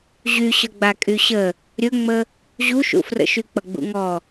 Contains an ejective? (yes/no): yes